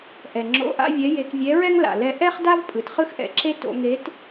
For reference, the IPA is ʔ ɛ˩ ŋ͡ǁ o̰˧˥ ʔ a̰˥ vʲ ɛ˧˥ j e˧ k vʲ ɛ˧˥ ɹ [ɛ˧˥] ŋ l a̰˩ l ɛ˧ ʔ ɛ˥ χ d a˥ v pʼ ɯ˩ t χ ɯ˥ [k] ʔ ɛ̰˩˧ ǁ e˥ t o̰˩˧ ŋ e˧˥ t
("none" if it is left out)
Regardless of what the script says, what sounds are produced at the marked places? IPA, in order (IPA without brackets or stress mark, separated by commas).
ɛ˥, x